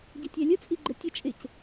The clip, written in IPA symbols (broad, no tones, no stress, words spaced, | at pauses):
ɟɪtʲɛlʲə t͡sʼiɡ͡ǃətʲʌ t͡ʃʼɪc